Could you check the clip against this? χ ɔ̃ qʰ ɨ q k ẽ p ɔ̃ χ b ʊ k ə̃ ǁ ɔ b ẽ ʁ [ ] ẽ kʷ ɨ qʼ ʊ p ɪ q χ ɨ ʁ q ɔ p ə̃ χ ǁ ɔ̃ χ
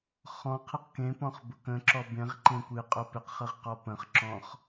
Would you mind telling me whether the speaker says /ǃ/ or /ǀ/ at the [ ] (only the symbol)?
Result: ǃ